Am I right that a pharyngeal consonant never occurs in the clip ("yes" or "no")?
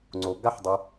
no